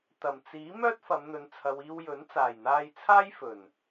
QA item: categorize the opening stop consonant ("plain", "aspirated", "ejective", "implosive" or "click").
plain